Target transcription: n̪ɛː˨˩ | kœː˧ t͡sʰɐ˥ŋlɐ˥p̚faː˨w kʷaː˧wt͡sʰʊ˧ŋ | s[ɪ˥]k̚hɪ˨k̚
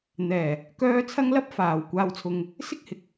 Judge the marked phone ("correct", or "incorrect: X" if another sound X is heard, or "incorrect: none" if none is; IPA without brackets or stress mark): correct